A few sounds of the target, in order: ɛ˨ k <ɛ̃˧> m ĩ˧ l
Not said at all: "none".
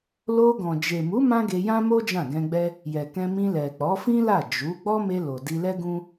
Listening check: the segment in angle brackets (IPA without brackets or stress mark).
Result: ɛ̃˧